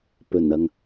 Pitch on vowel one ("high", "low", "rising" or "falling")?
low